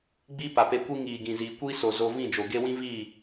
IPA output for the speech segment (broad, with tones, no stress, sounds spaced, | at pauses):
ɡ͡b iː˦ p a˨ p e˧ kʷ i˦ ŋ iː˨ ɡ ĩ˨ z iː˨ kʷ iː˦ s o˨ z o˧ v ĩ˦˨ d͡ʒ o˨ ɡ e˦ w ĩ˦ v iː˦˨